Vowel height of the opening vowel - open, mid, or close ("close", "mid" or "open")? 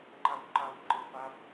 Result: open